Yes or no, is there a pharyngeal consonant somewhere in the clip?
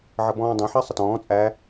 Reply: yes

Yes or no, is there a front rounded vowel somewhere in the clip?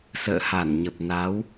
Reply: no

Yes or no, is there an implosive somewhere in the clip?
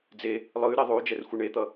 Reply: no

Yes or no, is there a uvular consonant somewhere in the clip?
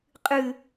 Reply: yes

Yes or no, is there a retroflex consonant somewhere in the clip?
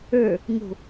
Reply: no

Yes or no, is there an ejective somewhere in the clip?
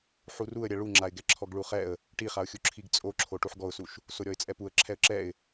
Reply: yes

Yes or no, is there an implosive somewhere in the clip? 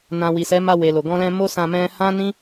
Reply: no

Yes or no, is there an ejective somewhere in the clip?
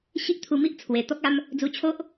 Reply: no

